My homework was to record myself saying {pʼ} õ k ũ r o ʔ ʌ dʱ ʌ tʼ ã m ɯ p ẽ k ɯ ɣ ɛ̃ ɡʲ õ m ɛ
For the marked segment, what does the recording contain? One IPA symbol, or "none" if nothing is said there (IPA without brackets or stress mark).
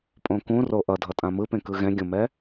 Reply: pʼ